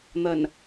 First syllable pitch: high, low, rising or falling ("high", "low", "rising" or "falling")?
low